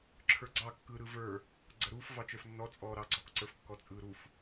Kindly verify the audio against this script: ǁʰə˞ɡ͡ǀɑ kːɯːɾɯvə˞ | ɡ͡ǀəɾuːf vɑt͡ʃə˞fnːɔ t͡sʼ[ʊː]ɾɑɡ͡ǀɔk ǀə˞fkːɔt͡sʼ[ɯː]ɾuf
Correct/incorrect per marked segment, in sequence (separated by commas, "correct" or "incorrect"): incorrect, correct